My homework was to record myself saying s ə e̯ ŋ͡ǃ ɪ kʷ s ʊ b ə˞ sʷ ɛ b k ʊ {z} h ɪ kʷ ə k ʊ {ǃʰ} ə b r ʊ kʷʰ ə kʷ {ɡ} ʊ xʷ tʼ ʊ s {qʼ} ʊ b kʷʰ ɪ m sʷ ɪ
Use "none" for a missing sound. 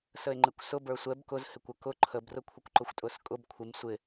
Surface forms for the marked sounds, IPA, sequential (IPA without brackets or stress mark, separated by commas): z, ǃʰ, ǃ, kʼ